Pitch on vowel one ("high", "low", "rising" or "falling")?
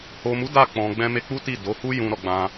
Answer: low